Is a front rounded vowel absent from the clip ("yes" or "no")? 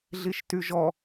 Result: no